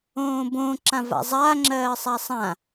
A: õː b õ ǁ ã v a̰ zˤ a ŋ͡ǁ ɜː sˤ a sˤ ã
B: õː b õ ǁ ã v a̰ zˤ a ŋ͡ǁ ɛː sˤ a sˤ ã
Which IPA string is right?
A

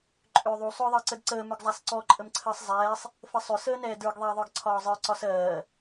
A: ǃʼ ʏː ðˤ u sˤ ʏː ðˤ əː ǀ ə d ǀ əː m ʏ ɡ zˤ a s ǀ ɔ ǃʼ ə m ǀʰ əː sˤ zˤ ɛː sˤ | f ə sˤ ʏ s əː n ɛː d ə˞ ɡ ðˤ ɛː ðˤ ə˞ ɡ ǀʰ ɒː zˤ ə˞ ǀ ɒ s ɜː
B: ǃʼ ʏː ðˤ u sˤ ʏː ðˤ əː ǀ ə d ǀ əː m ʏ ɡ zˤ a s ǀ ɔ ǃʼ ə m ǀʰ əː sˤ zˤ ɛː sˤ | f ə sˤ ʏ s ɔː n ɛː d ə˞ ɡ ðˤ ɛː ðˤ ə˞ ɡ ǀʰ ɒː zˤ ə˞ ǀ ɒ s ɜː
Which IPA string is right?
A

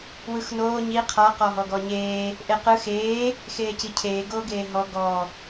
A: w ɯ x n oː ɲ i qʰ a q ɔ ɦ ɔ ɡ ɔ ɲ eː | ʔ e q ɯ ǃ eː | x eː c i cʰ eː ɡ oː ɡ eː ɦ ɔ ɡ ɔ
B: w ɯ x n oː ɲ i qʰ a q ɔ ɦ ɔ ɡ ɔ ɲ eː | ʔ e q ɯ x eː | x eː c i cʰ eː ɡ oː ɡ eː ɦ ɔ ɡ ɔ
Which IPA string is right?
B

